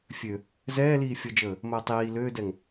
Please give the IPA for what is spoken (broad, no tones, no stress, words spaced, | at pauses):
fʲø | zɛːliː fʲəd͡ʒəː | məːtˤiː løːdɛŋ